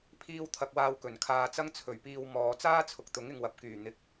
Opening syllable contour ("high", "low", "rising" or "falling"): high